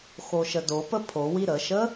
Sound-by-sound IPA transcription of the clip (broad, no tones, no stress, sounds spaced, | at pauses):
x o ʃ ə d o p ə pʰ o w i ɾ ə ʃ ə